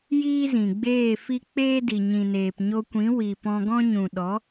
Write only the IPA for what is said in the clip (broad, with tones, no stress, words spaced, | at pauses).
jiː˦zĩ˨ɡ͡beː˦˨fi˦ k͡peː˦di˨ ɲĩ˨neː˨p ɲo˧kʷĩ˨˦ wi˨pɔ̃˧ɡɔ̃˦ ɲũ˨ɗɔ˨˦